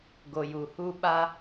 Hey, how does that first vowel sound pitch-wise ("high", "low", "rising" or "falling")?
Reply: low